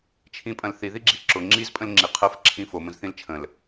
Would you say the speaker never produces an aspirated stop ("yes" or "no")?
no